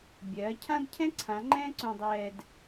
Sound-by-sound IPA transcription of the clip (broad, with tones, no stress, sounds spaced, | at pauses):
bʲ ɜː˩˥ cʰ ã˥ d cʰ ɛ̃˥ ǀʰ ã˩˥ ŋ͡ǃ ɛ̃ː˥ ǀ õ˧ dˤ ɛː˧ d